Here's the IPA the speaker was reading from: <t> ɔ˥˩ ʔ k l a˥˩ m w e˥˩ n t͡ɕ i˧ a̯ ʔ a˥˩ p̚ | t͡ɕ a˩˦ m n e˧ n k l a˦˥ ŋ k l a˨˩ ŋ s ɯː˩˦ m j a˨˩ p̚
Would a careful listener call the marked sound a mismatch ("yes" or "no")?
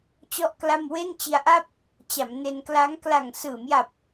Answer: yes